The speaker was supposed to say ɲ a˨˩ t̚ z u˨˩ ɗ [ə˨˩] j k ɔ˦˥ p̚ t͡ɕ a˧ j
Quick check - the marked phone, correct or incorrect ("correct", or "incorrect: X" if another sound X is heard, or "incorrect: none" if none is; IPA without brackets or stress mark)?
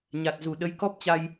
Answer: incorrect: ə˨˦